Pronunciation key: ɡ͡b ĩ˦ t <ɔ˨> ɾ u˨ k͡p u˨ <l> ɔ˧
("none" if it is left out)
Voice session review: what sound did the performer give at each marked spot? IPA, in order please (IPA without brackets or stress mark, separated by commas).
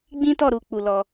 ɔ˦˨, l